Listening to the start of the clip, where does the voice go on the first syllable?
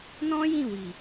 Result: high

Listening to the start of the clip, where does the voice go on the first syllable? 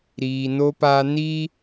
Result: low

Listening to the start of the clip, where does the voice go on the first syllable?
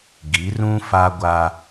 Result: rising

